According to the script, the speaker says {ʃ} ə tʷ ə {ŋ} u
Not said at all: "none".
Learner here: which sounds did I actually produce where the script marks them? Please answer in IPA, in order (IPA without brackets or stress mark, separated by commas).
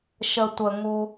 ʃ, ŋ